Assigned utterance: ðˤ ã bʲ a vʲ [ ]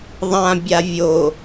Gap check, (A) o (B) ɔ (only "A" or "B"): A